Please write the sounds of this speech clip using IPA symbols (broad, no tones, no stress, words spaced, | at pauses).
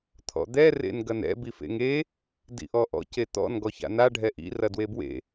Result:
t̪ʰɔ̰d̪ɛ rḛnɡɐnɛ̰ bifḛŋe | dḭʔɔʔɔ̰ cet̪ɔ̰n ɡɔça̰na ɖʱɛʔḭ rɐdwebwḛ